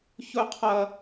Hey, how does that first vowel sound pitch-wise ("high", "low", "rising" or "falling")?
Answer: high